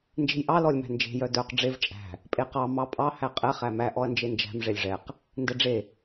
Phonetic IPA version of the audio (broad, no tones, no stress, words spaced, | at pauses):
nd͡ʒe̤jʔɑ lɔlʲmæ̤nd͡ʒe̤ jœdœq ɖ͡ʐev t͡ʃʼæ̤ | pʼeqɑ mɑpʼɑ hæqʼɛ χæmæ ʔɔɐ̯nd͡ʒend͡ʒæ̤m ʐelʲʐɛq | ndɛɖ͡ʐe